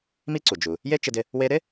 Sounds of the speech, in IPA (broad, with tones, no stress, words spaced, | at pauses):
mi˥ǀu˩ d͡ʒu˩ | je˥t͡ʃɪ˧dɪ˧ | we˧ɾɪ˥